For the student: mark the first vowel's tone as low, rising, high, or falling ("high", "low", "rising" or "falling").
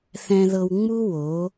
low